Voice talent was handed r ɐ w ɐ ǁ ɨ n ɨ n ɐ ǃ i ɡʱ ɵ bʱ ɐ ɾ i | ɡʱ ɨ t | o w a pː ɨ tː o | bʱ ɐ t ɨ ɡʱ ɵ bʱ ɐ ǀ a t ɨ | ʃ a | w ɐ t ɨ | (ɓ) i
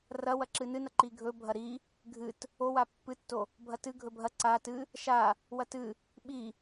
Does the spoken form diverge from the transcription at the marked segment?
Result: no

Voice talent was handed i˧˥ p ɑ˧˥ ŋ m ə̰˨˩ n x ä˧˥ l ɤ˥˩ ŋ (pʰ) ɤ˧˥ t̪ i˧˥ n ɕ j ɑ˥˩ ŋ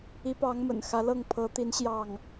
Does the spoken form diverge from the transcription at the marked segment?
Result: no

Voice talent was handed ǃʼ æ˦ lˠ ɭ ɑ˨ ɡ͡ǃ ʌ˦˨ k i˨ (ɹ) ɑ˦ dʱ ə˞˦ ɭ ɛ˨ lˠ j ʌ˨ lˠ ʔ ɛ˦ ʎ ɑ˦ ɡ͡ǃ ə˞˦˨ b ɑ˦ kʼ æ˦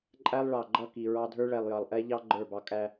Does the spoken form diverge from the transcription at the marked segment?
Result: no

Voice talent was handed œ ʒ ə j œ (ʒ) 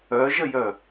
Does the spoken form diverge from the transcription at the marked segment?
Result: yes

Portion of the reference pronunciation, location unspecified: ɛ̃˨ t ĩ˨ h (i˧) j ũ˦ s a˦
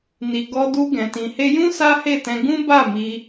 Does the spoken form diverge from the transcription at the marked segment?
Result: yes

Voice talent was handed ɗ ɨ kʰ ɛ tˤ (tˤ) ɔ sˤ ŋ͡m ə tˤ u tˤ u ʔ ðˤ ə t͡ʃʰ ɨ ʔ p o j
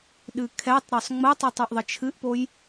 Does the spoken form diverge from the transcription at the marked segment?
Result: yes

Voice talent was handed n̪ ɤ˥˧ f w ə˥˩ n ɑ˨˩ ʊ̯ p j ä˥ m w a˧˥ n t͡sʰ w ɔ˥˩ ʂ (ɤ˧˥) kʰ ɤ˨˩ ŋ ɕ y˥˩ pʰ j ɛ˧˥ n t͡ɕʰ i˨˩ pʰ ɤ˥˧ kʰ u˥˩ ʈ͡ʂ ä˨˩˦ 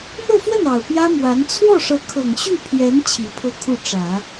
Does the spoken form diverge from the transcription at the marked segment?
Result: no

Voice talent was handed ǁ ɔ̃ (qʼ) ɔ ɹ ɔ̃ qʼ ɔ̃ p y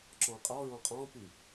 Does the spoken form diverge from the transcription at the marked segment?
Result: no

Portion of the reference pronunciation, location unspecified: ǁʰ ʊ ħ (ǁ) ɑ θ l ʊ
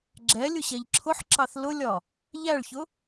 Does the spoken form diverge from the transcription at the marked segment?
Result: no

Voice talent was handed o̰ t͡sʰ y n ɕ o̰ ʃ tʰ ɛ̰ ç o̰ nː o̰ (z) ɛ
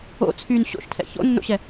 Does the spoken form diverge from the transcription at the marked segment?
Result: yes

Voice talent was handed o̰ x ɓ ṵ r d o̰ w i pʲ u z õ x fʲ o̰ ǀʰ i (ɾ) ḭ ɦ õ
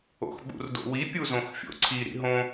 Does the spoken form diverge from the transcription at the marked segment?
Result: no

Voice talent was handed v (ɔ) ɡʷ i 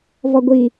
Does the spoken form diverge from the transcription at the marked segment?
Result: no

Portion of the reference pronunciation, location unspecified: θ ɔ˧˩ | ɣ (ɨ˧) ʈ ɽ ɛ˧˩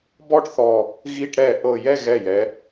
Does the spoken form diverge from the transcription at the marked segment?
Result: yes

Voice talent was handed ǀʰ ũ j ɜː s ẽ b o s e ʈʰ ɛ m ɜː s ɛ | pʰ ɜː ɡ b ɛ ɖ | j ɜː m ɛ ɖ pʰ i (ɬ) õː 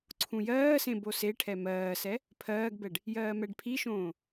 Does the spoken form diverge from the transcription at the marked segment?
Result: yes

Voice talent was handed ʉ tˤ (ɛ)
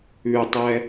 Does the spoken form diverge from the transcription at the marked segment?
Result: no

